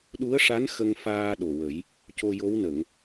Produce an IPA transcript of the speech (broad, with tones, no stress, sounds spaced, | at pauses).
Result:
ɗ u˧˥ ə̯ ʂ a˧˥ n x ə˧ ŋ f aː˧ ɗ o˨˩ w ə˨˩˦ j | c o˧ j o˧˥ w n ə˨˩˨ ŋ